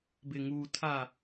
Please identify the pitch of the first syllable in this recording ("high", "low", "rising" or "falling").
low